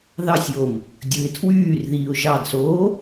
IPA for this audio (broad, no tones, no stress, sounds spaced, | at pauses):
ð ɑ sʲ j o m | dʲ ɯ ɪ̯ tʰ w yː r ð iː ʊ̯ ʒ ɑ d s oː